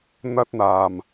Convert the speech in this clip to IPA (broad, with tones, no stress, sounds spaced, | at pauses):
n̪ ɐ˥ t̚ n̪ aː˨˩ m